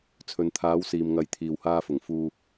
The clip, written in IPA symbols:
t͡sʰ ɵ˨ n t̪ʰ aː˨˧ w s iː˨ m ŋ ɐ˧ j t̪ʰ iː˨ w h aː˧ f ʊ˨˩ ŋ f uː˧

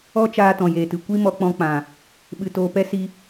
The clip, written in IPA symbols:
ɔ˦ t͡ʃ aː˧ t ɔ̃˨ j eː˨ t ɨ˨ kʷ i˦ m ɔ˧ k͡p ɔ̃˧ k͡p ã˨ | ɓ ɨ˧ t oː˧ p ɛ˦ s i˧

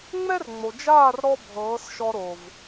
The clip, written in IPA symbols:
ŋ͡m ɛ˦ r ŋ͡m o˨ d͡ʒ aː˦˨ r ɾ ɔ˧ bʱ ɤː˨˦ s ʃ ɔ˧ ɾ o˨ v

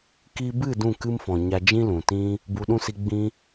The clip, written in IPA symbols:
k i˧ b ɨ˦˨ d ũ˦˨ k ɨ˧ m f ɔ̃˨ ɲ a˧ d͡ʒ ĩ˦ l ũ˨ t ĩ˦ | b u˧ ɗ ũ˦ s i˧ ɡ͡b ĩ˧

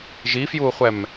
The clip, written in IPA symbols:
ʒ i f j uː χʷ ɛ m

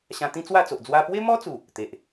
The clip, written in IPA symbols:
ɕ ã˧ t̪ ĩ˦ t͡s w a˥˧ t͡s o˨ ʔ d͡z w a˧ p w e˦ m ɔ˦ t͡s u˨˩ | t̪ e˨ ʔ

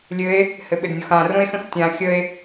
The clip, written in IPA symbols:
lʲ ɘ e̯ | h ɘ ɓ ɘ d nʲ o x ã r õ e̯ x ə̃ x tʲ ã xʲ ə e̯

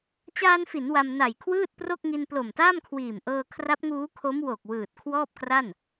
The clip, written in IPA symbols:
t͡ɕ aː˧ n f i˩˦ n w a˧ m n a˨˩ j kʰ w ɯː˥˩ t̚ p r o˥˩ k̚ ŋ i˧ n p l o˨˩ m t aː˥˩ m kʰ w iː˨˩ m ʔ ɤː˧ kʰ r a˦˥ p̚ ŋ uː˦˥ kʰ o˦˥ m w o˨˩ k̚ w ɯː˨˩ t̚ kʰ w ɔː˥˩ p̚ k r a˥˩ n

